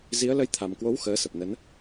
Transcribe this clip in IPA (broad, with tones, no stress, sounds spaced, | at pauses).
z i˨˦ ə̯ l ə˧ j t̪ʰ a˨˩ m k w o˨˦ w x əː˨˦ s ə˨˩ p̚ n ə˨˦ n